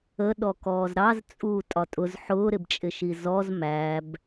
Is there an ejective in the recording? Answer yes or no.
yes